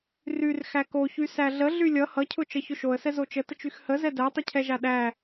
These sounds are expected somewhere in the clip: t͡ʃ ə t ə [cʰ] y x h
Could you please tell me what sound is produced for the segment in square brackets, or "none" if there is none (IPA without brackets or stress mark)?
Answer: t͡ʃ